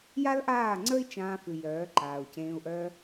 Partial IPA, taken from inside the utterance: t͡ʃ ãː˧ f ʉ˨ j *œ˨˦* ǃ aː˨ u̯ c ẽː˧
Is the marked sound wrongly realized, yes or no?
yes